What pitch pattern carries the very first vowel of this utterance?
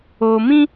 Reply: low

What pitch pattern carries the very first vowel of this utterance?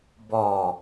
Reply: low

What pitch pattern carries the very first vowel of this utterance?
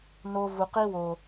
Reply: high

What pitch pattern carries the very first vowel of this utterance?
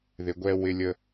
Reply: low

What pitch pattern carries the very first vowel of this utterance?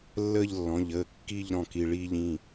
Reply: falling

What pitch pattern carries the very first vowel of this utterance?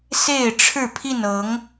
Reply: falling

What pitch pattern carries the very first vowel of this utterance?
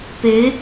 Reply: rising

